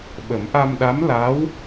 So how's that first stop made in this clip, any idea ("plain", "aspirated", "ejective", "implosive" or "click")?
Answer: implosive